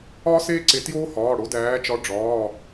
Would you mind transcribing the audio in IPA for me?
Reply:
ɒː˥ s eː˥ ǀ e˨˦ t j oː˥ h ɒː˩˧˩ ɽ o˨˦ d æː˨˦ t͡ʃ ɒ˨˦ ɖ͡ʐ ɒː˩˧˩

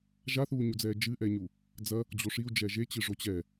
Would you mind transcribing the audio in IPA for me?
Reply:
ʒ a θ uː ɲ u d͡z ɛː d͡ʒ ɨ ʔ ɛ ɲ u | d͡z ɐ | d͡ʑ o ʂ i u̯ d͡ʒ ɛ ʒ e t͡ɕ ɨ ʐ o t͡ɕ ɛ

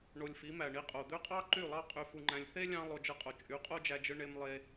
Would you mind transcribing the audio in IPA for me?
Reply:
ɳ o˧ lʲ f i˨˦ m æ˨ ɳ i˧ qʼ o˨ d̪ ø˦ qʼ ɑ˦ ǃ y˦˨ lˠ ɑ˦ qʼ y˧ f u˧ ŋ͡ǃ æ̃˧ lʲ θ e˦ lʲ ɑ̃˧ lˠ o˧ d͡ʒ ɯ˧ qʼ o˨ t͡ʃʼ y˨˦ qʼ o˦ d͡ʒ æ˧ d͡ʒ ɯ˧ ɳ e˧ m lˠ e˧

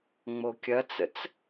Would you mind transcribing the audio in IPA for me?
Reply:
ŋ͡m o kʲ ɐ t͡s ə̰ t͡s

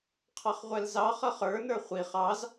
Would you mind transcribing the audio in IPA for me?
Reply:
qʰ ɑ χ ʁʷ ɛ l z ɑ χ ʌ χ ə˞ n ə˞ χʷ i χ ɑ z

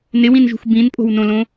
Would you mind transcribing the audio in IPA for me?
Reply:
n ɪ w ĩ n ʒ ṳ x b ĩ n pʼ o̤ w n õ l õ

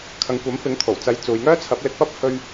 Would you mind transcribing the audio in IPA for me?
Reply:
kʰ ɐ˨ ŋ kʷ ɐ˨˥ m f ɪ˨˥ ŋ t̪ʰ o˨˩ w t͡s ɐ˨˧ j t͡s uː˨ j ŋ œː˥ t͡sʰ ɐ˨˥ p̚ l ɪ˧ k̚ p ɐ˥ p̚ h ɵ˧ ɥ

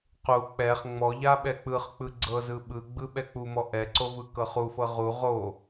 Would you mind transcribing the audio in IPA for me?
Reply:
q u k͡p ɛ χ ŋ͡m ɔ ʎ a ɓ ɛ k͡p ɯ χ k͡p ɯ ɡ͡ǀ ɤ z ɯ ɓ ɯ ɡ͡b ɯ ɓ ɛ k͡p u m ɔ ʔ ɛ ǀ o v ɯ k ɤ χ u f ɤ ʁ u ʁ o

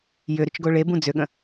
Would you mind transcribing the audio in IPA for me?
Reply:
j ʏ ɾ ʏ t͡ʃ ɡ o ɭ e b ũ d͡z ʏ ɠ ə̃

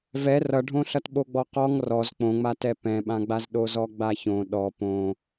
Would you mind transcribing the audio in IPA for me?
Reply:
v ɛ r ʌ ɖʱ õ ɬ ʌ t ɓ o ɡ͡b ɔ q ɔ ŋ r ɔ z k͡p õ ŋ͡m a t ɛ p ɛ̃ ɓ ã ɡ͡b a z ɗ o z ɔ ɡ͡b a ç õ ɗ ɔ p õ

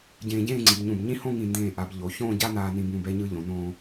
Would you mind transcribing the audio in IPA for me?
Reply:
ɟ ẽː˧ ɟ ẽː˥˧ ŋ͡ǀ i˩˧ b ɲ ũ˧˩ b ɲ ĩ˥ h õ˥˧ ŋ ĩ˧˩ n d ẽː˧˩ ʔ a˩˧ b ʎ o˩˧ ç õː˥˧ ɟ a˥ n aː˧ n ĩ˧ b ũ˧˩ b ɛ˧ ɲ ɯ˧ ʎ õ˩˧ n õː˧

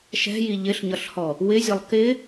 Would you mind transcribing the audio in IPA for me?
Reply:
ʃ ɛ̤ j i ʎ ɪ ɬ ɲ ʌ ɬ h ɔ | w ɪ zʲ ʌ lˠ k ɪ

